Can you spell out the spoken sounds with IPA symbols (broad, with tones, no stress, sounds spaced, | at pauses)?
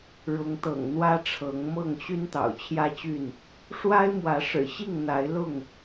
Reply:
ɻ ʊ˨˦ ŋ t̪ ɤ̰˨˩ ŋ n̪ w ä˦ ʈ͡ʂʰ ɤ˨˦ ŋ m ɤ˥˨ ŋ ɕ y˦ n t̪ ɑ̰˨˩ ʊ̯ t͡ɕʰ j ä˦ t͡ɕ y˥˨ n | ʂ w a˦ ɪ̯ m w ä˨˦ ʂ ɻ̩˨˩ ɕ i˥˨ ŋ n̪ a˨˦ ɪ̯ l ʊ˥˨ ŋ